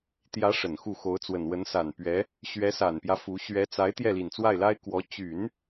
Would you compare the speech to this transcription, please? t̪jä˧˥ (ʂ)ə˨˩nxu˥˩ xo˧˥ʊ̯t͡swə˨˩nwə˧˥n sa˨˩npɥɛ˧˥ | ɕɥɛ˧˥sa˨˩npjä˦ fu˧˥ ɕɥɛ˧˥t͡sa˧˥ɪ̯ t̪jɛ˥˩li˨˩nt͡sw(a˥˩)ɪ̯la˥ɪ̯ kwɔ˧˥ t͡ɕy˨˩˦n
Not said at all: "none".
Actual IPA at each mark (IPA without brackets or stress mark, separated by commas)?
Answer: ʂ, a˥˩